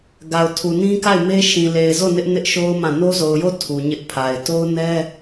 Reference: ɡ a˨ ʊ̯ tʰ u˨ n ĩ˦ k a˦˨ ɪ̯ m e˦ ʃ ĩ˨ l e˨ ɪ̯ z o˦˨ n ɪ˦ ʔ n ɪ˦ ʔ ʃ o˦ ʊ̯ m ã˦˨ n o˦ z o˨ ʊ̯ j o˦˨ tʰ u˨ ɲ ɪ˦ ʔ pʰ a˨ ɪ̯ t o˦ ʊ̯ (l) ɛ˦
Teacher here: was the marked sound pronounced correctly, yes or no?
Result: no